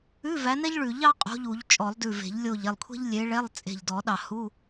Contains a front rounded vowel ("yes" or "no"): no